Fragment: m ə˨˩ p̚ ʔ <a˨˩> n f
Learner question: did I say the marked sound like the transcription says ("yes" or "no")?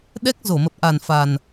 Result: yes